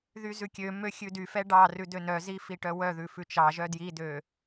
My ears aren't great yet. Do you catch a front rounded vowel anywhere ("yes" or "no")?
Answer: yes